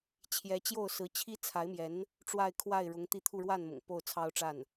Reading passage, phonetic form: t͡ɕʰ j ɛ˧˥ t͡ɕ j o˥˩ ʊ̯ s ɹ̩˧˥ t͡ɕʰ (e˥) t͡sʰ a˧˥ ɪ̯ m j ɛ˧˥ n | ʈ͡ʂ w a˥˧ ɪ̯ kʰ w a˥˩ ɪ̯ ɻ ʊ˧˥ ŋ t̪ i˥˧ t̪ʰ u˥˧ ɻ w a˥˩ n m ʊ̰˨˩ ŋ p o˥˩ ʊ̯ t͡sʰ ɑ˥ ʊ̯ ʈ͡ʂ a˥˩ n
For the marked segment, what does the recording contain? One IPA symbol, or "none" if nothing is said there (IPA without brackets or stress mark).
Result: i˥